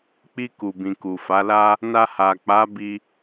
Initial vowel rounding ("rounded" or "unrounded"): unrounded